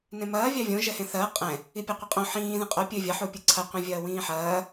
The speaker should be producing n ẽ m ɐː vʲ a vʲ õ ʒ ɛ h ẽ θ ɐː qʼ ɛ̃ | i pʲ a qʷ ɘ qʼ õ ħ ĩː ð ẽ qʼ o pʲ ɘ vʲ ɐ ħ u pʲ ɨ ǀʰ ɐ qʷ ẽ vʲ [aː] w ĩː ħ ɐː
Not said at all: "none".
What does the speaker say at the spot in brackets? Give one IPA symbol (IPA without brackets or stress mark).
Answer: ɐː